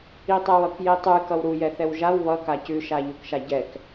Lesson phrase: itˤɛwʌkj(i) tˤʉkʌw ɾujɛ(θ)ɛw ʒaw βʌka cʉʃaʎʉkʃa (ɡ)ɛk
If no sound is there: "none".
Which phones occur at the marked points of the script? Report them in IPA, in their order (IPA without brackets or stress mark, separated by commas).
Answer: i, θ, ɟ